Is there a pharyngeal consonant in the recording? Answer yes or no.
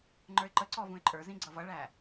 no